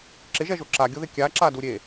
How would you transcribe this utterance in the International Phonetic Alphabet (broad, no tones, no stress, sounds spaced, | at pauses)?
ǁ ɪ ʒ ɛ ʒ o ǁ a ɡʲ o ð ɪ kʲ a ǁ a d u ɾʲ e